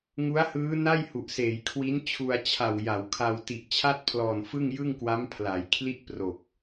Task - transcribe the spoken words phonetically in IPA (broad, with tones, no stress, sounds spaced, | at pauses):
ŋ u˦˥ a̯ h ɯː˦˥ n a˥˩ j h u˨˩ ʔ s eː˩˦ j kʰ w i˦˥ n t͡ɕʰ u˧ a̯ t͡ɕʰ a˨˩ w j a˩˦ w kʰ a˧ w t i˨˩ ʔ t͡ɕʰ a˥˩ t̚ pʰ l ɔː˨˩ n f ɯ˥˩ ŋ j ɯ˥˩ ŋ k w a˦˥ m pʰ l a˩˦ j kʰ l i˥˩ ʔ p r o˨˩ k̚